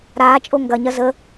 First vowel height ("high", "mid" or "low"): low